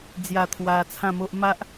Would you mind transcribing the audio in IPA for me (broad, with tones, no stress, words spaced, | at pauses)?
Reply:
d͡zja˨˩ t̪ʰwa˧t͡sʰã˥˧mo˦ʔ ma˦ʔ